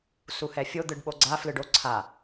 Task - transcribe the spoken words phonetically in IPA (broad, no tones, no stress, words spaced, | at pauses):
suhɛfʲo d̪ɯɖɓoɡ͡ǀa flɯɖo ǀʰa